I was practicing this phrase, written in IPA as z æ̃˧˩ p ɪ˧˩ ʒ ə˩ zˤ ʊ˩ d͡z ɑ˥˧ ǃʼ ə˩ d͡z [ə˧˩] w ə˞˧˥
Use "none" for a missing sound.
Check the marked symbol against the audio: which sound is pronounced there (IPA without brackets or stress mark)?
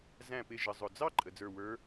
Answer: ə˞˧˩